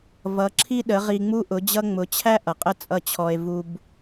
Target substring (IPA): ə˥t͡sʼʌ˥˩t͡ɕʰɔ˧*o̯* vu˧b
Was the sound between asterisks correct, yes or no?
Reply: no